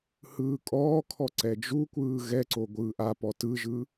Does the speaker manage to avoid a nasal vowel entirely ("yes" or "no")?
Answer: yes